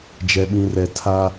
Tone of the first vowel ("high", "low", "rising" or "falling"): low